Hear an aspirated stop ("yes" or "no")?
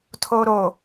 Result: yes